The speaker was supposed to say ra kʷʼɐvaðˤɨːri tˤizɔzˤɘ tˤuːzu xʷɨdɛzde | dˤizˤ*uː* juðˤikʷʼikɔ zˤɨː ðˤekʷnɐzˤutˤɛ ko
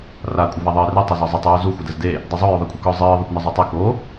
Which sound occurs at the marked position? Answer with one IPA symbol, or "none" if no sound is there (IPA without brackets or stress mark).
u